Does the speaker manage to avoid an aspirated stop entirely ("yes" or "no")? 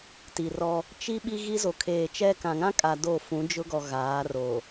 no